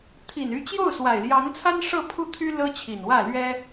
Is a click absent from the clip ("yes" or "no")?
yes